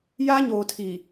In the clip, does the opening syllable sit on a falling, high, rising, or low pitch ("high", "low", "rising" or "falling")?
high